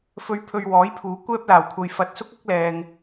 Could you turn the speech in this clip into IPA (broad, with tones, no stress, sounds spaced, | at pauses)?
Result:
f ɵ˨ ɥ pʰ ɵ˨ ɥ w ɔː˨˥ j pʰ uː˨˥ kʷ ɛː˥ p̚ l aː˨˩ w kʷʰ ɐ˨ j f ɐ˨ t̚ s ʊ˥ k̚ ɐ˥ k̚ l ɛː˨ ŋ